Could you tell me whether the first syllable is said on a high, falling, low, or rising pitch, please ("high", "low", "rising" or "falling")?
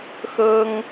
high